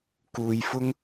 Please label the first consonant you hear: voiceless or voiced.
voiceless